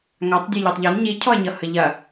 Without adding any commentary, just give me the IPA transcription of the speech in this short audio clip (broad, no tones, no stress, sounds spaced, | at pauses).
ŋ a tˤ dʲ e ʎ ɔ tˤ ʎ ɔ n ɲ i cʰ ɔ ɐ̯ ɲ ʌ h ə ʎ ɐ